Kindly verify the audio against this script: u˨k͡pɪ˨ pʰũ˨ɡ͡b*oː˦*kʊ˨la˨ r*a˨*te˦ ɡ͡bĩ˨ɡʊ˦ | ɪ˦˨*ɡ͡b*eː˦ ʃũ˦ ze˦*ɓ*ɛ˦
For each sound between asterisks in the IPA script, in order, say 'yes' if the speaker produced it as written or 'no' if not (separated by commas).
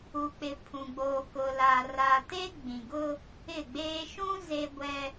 no, yes, yes, no